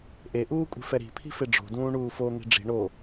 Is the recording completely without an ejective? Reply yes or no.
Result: no